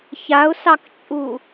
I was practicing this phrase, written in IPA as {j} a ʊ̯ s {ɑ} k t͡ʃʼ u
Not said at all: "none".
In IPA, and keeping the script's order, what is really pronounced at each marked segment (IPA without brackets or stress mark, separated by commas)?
ç, ɑ